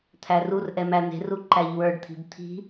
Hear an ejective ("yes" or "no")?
no